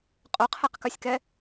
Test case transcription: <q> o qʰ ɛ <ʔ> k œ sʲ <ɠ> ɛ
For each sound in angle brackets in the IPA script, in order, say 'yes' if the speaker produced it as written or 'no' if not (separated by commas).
no, no, no